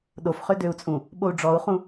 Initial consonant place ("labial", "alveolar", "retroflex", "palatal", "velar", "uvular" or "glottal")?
alveolar